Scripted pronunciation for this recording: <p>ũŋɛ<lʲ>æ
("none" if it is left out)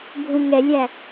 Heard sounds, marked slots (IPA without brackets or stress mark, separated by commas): bʱ, lʲ